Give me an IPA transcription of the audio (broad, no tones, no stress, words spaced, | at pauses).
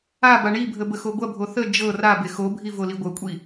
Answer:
aba ɳibʱə bəxoɡʷɐbʱo θə d͡ʒɤ rabe xobʱi voliɡʷɤkʷʼi